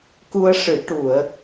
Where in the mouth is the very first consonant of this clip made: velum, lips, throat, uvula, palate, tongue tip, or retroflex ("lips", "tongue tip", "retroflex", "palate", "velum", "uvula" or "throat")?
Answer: velum